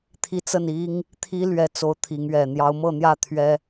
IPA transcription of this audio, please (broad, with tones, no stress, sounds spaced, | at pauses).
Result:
t̪ʰ i˦ t͡s ə˥˨ n i˦ ŋ | t̪ʰ i˦ l ɥ ɛ˨˦ t͡s o˨˦ ʊ̯ t̪ʰ i˨˦ ŋ ɥ ɛ˨˩ n̪ j ɑ˨˦ ʊ̯ m ɤ˥˨ n̪ j ä˥˨ t̪ʰ ɥ ɛ˦